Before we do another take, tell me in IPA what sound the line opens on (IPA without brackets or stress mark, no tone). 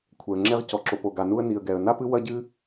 kʷʰ